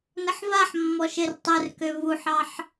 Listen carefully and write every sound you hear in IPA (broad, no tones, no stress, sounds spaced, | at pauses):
n ə ħ v a ħ mː ɔ ʃ e r tˤ ɛ r k ø v u ħ ɑ ħ